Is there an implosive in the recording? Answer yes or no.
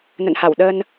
yes